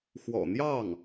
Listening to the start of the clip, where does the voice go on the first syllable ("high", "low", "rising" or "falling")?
low